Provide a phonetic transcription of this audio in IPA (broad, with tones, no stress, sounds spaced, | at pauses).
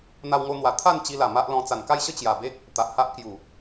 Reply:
n̪ a˧ w ŋ o˧ n̪ w a˨˩ t̪ʰ a˥˧ n t͡ɕ i˧ l a˨˩ m a˦ ʔ l ɔ̃˧ t͡s a˨˩ n k a˥˧ j ɕ ə˥˧ t͡ɕ j a˨˩ b e˦ k̚ | t̪ a˨ ʔ h a˦ ʔ k j u˨˩